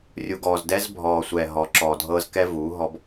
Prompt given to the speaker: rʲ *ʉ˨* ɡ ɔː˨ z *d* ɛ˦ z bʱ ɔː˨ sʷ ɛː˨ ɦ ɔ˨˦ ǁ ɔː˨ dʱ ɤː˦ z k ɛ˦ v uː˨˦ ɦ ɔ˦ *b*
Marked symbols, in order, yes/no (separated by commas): no, yes, yes